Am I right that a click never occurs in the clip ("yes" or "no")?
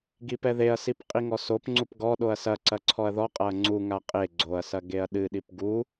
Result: no